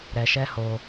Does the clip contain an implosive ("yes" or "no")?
no